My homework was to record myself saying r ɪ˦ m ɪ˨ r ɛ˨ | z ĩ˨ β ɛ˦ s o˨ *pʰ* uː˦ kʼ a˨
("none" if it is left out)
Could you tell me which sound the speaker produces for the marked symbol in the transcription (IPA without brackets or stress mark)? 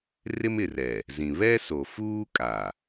f